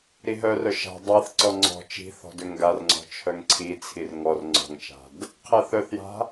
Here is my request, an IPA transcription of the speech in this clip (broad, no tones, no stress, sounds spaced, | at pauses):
ɾ i ɦ œ r œ ʃ a̤ dˤ a θ ǀ ɔ ŋ͡ǀ ɔ̤ t͡ʃ i̤ θ ɔ̤ d ø ŋ ɡ a r ŋ͡ǀ ɔ̤ t͡ʃʰ œ ŋ ǀʰ i t͡sʰ i r ŋ ɔ r ŋ͡ǀ ɔ̤ ŋ t͡ʃ a̤ d | qʰ ɛ θ œ θ j a̤